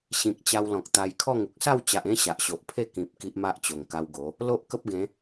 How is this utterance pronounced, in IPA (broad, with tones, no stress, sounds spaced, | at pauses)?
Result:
ɕ ĩ˨ k̚ t͡ɕ a˧ w l ɔ̃˨ k̚ t̪ a˧ j kʰ ɔ˥˧ ŋ u˨ k̚ s a˥˧ w t͡ɕ a˨ ʔ ẽ˥˧ ɕ a˨ ʔ ɕ o˨ ʔ pʰ e˥˧ k ĩ˨ p̚ k i˦ ʔ m a˦ ʔ t͡ɕ o˨˩ ŋ k a˧ w ɡ o˨˦ | l o˦ ʔ k ə˦ p̚ ɡ ẽ˨˦